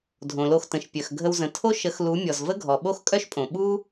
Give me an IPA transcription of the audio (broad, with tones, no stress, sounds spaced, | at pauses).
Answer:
dʱ õ˨ l o˧ x t ə̃˨ ʃ pʲ œ˨ x ɡʱ ə˧ w z ə̃˨ tʰ o˦ ʃ ə˨˦ x l u˨˦ mʲ ɔ˨ z v ə˦ ɡʱ ɔ˨ ɓ o˦ x kʼ œ˦ ʃ pʼ õ˨ ɓ u˦